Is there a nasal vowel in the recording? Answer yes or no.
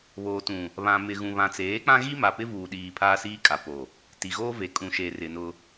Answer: yes